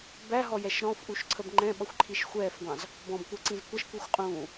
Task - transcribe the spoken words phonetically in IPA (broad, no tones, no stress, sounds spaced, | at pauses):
b æ ɦ ɔ j ɛ ʃ ɾ ɔ̃ f ʔ u ʃ ǀʰ ə b ŋ͡ǃ ɛ̃ ɓ ʌ xʷ ǃʰ i ʃ xʷ ɛː f ɡʷ ɑ̃ z | b ɔ̃ b kʷ əː ǀ ĩ z kʷ ʌ ʃ kʷ i xʷ qʼ ũː